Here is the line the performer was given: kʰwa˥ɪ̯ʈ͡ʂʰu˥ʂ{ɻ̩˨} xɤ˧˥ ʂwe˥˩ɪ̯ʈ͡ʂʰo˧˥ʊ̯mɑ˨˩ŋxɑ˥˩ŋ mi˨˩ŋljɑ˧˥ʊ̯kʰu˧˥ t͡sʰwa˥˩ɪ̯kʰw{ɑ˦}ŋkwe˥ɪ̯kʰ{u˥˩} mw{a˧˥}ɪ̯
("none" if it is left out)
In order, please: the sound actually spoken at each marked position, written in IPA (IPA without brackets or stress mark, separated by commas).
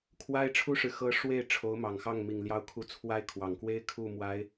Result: ɻ̩˨, ɑ˨˩, u˥˩, a˧˥